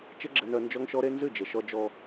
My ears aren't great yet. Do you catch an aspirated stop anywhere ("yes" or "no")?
no